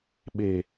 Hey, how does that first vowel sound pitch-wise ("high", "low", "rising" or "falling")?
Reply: low